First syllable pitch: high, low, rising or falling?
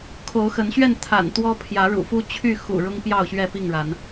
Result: rising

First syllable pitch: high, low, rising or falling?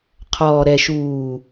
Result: low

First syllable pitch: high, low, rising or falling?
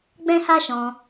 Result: high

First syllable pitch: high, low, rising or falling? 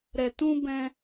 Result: low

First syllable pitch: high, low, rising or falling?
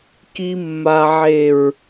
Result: low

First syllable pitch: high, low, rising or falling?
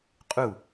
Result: falling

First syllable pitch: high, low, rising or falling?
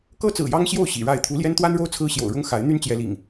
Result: high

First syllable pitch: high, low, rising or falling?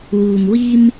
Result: low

